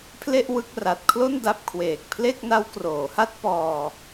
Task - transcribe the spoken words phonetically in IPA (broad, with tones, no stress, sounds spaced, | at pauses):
pʰ l e˥˩ ʔ w ɯ˦˥ k̚ r a˨˩ t̚ kʰ l o˥˩ n d a˦˥ p̚ kʰ w eː˨˩ k̚ pʰ l e˥˩ k̚ n a˦˥ w k r oː˩˦ h a˥˩ t̚ p ɔː˧